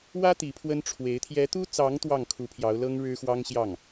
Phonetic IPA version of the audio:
w ä˥ t̪ i˧˥ pʰ w ə˥ n ʈ͡ʂʰ w e˧˥ ɪ̯ t̪ʰ j ɛ˧˥ t̪ u˥ t͡s ɑ˧˥ ŋ t̪ w ɑ˥˩ ŋ kʰ u˧˥ pʰ j ɑ˧˥ ʊ̯ l ɤ˥ ŋ ɻ ɻ̩˥ x w ɑ˥ ŋ ɕ j ɑ˥˩ ŋ

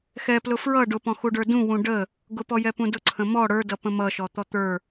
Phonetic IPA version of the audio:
x ɛ p l ʊ f ɹ ʌ ɖ ʊ p ɔ̃ x u ɖ ə˞ d ũ w ũ ɖ ə | ɡ ʊ p ɔ j ɛ p ũ d ʊ ǀʰ ə̃ m ɔ ɽ ə˞ d ʌ p ə̃ m ʌ ʃ ɔ t̪ ɔ t̪ ə˞

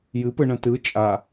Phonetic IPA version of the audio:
j ɨ p ɯ ɳ ə̃ t ɯ t͡ʃʼ a

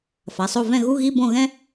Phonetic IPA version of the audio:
f a˩˧˩ sˤ o˦˨ v ɛ̃˦˨ ɣ u˧˥˧ ɣ i˧˥˧ b õ˦˨ ɣ ɛ̃˥

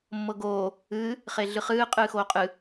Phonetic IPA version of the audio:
mː ɤ ɡ oː | ɨː | χ e ɮ ɨ χ ɨː qʼ ɨː x oː qʼ ɨ

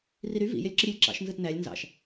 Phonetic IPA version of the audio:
r i ɾ y v ḭ j e lʲ ǁ ɯ ɾʲ e lʲ ǁ ɑ̰ ʃ n z ɯ t n æ lʲ n z ɑ̰ ʃ

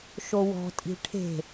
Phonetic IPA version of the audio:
ʃ o w ɔ̤ tʼ i̤ ʈʰ e̤

